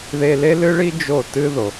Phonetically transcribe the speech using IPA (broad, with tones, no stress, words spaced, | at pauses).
ðe˧le˥lɨ˥ɭi˥ d͡ʒo˥˩tɨ˥ðo˩